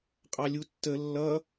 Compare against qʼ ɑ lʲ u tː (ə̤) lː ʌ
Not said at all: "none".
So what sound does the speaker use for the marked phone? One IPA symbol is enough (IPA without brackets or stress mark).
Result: ə